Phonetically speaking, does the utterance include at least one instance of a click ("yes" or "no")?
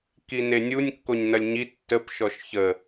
no